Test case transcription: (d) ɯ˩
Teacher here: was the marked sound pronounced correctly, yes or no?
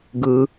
no